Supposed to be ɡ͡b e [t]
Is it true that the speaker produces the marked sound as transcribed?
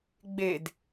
no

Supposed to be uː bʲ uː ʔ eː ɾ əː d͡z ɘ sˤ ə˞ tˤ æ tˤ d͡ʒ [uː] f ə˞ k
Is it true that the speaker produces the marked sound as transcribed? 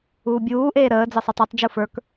no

